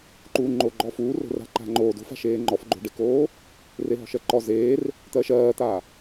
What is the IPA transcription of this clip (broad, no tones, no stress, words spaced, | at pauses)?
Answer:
ǃuːŋ͡ǃoɡ͡ǃɔfuː ro̤ra̤ǃa̤ŋ͡ǃoː do̤fa̤ʃeː ŋ͡ǃɔfɡ͡ǃo̤ɖekoː | reɦɔ̤ʃɜǃɔ zeːr | t̪ɜʃɜːt̪a